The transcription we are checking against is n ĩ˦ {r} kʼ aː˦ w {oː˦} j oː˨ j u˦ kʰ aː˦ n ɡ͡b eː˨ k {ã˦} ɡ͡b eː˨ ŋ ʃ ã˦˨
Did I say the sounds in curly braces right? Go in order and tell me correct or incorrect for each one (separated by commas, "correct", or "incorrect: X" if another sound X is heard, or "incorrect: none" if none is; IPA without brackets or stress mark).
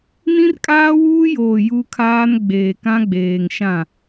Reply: correct, incorrect: uː˦, correct